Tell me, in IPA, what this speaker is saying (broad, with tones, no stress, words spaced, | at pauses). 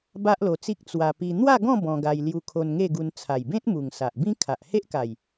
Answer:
ba˦ʔlo˧t͡si˦k̚ t͡swa˧ pi˧ n̪wa˥˧ɡɔ̃˥˧ bɔ̃˧ɡa˧j lju˧kʰo˧nŋe˥˧ɡu˧n t͡sʰa˨˩jbẽ˦t̚mu˨˩ŋ sa˨ʔbĩ˦ kʰa˨ʔ he˦ʔka˨˩j